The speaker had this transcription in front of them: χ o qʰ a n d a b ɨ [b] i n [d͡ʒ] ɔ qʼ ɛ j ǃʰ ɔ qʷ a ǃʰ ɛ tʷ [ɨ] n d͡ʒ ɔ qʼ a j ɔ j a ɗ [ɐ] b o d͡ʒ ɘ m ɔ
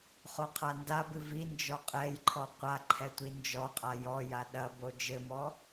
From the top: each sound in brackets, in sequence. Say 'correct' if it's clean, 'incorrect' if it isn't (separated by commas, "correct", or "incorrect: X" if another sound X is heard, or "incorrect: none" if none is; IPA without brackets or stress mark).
incorrect: v, correct, incorrect: i, correct